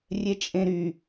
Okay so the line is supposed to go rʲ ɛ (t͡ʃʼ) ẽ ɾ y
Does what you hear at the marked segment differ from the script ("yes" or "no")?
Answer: no